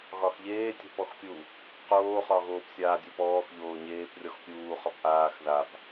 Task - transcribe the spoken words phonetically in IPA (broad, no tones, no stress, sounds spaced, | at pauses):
ɣ ɒ x ʎ eː tʲ ə̤ p ɔ x pʲ u | q oː χ ɒ ɣ oː p sʲ aː dʲ o p ɔː x ʎ oː ɲ eː p rʲ ɔ x pʲ uː χ ɒ p ʔ aː x ð a p